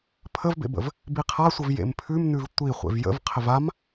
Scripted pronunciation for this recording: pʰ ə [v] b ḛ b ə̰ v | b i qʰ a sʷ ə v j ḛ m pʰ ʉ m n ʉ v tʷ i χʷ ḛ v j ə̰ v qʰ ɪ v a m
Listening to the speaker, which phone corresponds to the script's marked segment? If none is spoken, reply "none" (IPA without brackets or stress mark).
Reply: v